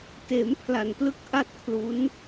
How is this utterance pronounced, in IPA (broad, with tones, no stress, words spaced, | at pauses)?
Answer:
teː˩˦mpʰla˨˩nplɯ˦˥k̚ ʔa˥˩t̚kʰlu˦˥n